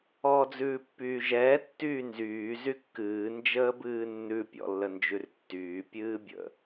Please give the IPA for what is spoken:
ɔː d͡z ʉː pː yː ʒ ɛː tː yː n z yː z y kː ɨː n d͡ʒ əː b ɨː nː ʉ pʲ ɔ̰ lː ə n d͡ʒ ʉ r tː yː pʲ ɨː bʲ ə̰

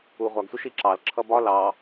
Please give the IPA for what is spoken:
u ʁʷ ɑ ɡ sʷ ə ʃ i ǁ ɑ l ǁʰ ʌ b ɒ l ɑ

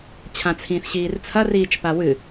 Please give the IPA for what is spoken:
t͡ɕʰ ã t͡sʰ ĩː θ ɕ iː r t͡sʰ ɐ r iː t͡ʃ p a w ɨ

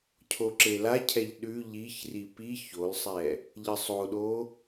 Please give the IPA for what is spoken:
cʰ o ǁ e l a cʰ ɛ ʎ ɗ ʉ ʎ i ç r i p i ç o l sˤ ɛ | ʎ ə sˤ o ɗ o

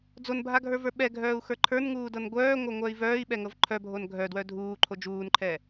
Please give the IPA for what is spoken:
d͡z o n bʱ a ɡʱ ə˞ v ə˞ ɓ ɛ ɡʱ œː u̯ x ə˞ ǃʰ ə˞ n ŋ uː d ɤ n ɡʷ œː ŋʷ ɤ ŋʷ œ i̯ v œː i̯ ɓ ɛ ŋ ɤ v ǃʰ œ bʱ o n ɡʱ œ d w œ dʱ uː ǃʰ o d͡ʒ uː n ǃʰ ɛː

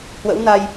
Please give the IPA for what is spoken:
h w ə̰˧˥ w n a˧ j

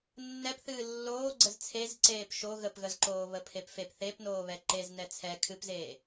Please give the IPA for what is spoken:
nː ɛ p θ ɨː lː oː ɡ͡ǀ ə z t͡sʰ e z ǀ eː p ʃ o ɣ ə p ɣ ə z ǃ oː β ə pʰ e p f e p θ e p n oː β ɛ ǃ e z n ɛ t͡sʰ ɛ kʰ ɨ p z eː

